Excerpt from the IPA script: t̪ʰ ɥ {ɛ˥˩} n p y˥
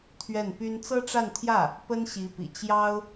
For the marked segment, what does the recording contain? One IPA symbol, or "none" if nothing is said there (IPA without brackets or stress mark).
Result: ɛ˥˩